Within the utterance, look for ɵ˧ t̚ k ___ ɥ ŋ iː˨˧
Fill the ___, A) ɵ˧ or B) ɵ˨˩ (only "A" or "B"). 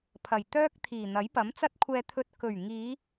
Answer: B